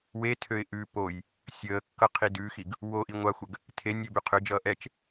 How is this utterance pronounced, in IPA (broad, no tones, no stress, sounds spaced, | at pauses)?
w e tʰ ø ɪ̯ ʔ ʉ p o j | sʲ əː kː ʌ qʰ i d ʉ x i ɡ | w o ʔ i ŋʷ a xʷ ə ɡ | tʰ e nʲ ø b ʉ qʰ ø d͡ʒ ʌː ʔ ɛ t͡ʃ